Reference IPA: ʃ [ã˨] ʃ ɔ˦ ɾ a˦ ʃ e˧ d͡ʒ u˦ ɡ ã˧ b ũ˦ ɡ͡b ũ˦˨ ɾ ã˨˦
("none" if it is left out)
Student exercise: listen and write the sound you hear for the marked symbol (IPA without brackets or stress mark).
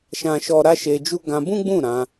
ã˦